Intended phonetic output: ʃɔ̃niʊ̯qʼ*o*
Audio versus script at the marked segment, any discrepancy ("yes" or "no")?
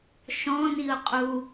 yes